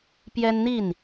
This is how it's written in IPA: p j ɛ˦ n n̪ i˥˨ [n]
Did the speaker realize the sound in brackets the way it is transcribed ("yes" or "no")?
yes